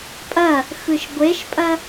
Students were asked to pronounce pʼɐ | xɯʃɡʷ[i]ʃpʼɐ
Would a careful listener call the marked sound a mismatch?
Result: yes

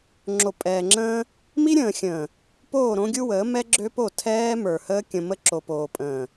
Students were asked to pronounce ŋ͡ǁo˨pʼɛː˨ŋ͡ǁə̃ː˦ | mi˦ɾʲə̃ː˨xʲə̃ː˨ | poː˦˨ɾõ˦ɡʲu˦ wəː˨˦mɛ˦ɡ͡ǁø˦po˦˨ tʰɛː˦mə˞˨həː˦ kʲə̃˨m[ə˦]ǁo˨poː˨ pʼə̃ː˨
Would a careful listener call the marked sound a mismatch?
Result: no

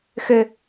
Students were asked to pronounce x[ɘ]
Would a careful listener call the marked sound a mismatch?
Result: no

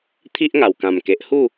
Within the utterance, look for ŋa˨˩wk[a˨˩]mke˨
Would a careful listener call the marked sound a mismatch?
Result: yes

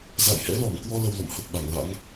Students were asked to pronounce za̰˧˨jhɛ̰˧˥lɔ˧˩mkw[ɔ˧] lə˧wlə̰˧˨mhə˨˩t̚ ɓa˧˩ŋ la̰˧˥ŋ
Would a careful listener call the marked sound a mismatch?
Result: no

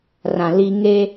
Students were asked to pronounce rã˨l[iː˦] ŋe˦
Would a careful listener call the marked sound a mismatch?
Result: no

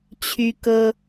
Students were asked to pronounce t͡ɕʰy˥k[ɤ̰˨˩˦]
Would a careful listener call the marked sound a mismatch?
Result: yes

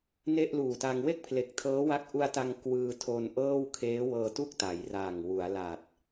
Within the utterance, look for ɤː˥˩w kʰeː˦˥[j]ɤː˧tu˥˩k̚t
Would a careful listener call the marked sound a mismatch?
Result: yes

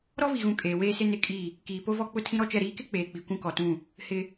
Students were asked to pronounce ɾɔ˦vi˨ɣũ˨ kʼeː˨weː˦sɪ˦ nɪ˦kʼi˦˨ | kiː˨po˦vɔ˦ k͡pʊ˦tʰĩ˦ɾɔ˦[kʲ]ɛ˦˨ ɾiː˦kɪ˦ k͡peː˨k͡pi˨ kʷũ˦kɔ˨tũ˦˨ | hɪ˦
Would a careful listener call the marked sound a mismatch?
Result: yes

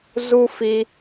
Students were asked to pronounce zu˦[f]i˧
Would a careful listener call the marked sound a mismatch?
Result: no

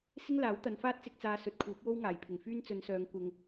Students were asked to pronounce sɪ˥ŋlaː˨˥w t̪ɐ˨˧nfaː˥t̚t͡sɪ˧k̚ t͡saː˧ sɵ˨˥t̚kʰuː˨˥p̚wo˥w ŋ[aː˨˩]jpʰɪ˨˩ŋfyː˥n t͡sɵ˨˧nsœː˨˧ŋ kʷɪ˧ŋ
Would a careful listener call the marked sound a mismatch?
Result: no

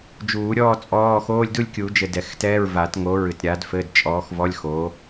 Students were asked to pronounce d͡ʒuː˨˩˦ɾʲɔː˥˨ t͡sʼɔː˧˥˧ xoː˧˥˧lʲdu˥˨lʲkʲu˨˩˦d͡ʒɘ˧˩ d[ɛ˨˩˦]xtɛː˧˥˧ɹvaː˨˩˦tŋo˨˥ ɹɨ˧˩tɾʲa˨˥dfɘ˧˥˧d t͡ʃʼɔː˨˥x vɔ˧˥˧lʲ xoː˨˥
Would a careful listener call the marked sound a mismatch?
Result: no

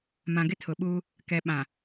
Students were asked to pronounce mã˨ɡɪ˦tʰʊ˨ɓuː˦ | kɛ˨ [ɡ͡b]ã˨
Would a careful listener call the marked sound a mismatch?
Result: yes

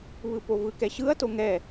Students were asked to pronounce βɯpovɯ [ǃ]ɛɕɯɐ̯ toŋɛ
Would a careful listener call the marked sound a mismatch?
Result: yes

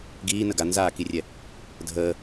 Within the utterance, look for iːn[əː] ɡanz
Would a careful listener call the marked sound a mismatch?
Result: yes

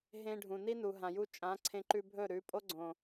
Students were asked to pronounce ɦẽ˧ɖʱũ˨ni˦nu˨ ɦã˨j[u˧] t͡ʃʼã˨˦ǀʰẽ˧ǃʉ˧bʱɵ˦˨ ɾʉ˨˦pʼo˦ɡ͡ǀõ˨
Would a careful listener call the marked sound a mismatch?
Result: no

